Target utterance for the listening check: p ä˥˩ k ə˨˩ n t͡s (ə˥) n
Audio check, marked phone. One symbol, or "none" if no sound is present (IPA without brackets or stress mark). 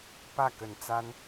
a˥